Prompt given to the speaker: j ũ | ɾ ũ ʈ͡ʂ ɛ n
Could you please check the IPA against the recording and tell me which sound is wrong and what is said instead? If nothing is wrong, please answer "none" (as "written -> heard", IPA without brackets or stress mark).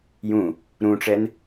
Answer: none